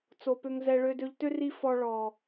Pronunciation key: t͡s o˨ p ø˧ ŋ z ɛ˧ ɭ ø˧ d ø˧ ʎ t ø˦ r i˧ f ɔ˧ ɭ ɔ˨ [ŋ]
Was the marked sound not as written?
yes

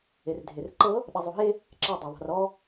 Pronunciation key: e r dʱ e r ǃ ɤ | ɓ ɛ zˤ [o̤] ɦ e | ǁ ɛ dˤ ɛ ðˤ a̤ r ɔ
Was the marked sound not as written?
yes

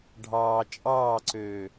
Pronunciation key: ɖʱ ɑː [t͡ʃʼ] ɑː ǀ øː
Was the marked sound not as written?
no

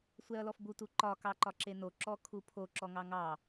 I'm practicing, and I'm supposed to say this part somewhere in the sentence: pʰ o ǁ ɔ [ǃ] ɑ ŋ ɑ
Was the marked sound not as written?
yes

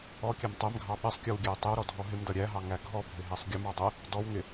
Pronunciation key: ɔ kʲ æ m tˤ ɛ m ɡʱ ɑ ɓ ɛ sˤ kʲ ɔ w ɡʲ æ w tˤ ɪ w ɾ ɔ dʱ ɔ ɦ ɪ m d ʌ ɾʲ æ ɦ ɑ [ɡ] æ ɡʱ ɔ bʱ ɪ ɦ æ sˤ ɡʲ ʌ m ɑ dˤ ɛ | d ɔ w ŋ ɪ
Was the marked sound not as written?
yes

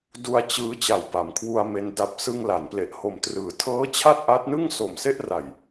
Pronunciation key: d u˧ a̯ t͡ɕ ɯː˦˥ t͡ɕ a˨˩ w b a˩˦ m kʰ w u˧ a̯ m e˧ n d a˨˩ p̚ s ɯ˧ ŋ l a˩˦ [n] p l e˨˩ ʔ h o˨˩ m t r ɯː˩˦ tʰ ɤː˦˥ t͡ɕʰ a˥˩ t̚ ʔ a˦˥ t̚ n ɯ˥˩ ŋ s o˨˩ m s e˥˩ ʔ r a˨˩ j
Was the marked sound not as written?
no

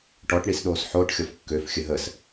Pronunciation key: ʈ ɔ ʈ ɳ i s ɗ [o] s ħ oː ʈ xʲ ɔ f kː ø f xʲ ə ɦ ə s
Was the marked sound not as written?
yes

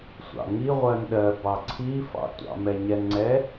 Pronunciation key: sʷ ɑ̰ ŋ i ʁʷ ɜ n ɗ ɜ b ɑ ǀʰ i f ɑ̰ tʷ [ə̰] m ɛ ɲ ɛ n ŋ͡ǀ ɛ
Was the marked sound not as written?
yes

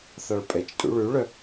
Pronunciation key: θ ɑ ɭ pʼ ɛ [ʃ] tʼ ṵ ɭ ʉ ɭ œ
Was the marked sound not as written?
yes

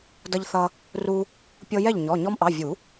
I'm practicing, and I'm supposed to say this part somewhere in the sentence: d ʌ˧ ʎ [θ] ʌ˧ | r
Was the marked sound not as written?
no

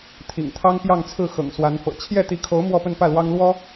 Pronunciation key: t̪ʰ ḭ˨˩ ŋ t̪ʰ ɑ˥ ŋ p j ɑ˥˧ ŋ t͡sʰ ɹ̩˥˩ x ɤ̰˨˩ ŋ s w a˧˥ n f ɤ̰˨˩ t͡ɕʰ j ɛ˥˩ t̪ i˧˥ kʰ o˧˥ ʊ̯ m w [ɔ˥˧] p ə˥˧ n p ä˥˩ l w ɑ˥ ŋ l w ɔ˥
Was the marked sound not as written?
no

